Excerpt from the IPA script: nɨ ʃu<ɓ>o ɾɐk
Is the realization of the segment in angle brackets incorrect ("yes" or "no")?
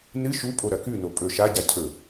yes